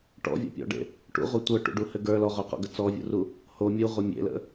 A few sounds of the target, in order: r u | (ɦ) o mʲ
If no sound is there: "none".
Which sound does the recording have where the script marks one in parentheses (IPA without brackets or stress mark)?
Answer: h